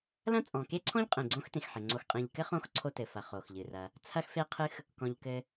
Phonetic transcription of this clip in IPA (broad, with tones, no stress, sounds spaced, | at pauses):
l ɐ̃˦ t͡sʼ ɔ̃˩ k e˥ ǀʰ ɔ̃˥ ʎ qʼ ẽ˩ ɡ͡ǀ õ˥ x t ẽ˩ x ħ ɘ˩ ŋ͡ǀ o˨ x qʼ ẽ˨ ʎ k ɘ˥ χ õ˦ x ǀʰ o˦ t ɘ˩ f ɐ˨ χ o˩ x ʎ ɨ˩ r ɐ˨ | t͡sʰ ɐ˦ x f e˦ qʰ ɨ˦ x | k ɔ̃˩ ʎ k ɘ˨